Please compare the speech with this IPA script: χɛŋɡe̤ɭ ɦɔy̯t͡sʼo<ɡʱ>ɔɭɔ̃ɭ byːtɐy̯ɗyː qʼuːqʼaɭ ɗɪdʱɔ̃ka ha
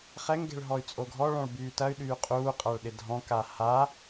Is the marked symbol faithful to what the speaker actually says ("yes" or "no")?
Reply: yes